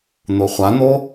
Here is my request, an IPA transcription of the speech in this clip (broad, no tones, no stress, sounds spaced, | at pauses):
n̪ o χʷ a n̪ o